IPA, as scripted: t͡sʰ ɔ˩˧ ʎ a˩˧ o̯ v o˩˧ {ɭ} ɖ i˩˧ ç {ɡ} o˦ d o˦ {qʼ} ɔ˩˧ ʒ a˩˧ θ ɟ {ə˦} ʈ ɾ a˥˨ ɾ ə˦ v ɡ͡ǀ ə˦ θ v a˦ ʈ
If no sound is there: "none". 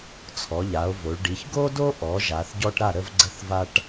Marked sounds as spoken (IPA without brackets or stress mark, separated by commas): ɭ, ɡ, ʔ, ɔ˦